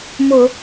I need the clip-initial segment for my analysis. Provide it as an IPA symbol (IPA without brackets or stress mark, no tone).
m